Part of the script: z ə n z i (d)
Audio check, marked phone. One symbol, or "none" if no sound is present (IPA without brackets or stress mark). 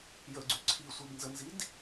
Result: d